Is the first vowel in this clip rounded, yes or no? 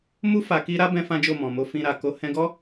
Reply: yes